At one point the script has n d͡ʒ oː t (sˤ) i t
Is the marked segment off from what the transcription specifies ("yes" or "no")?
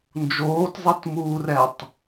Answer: yes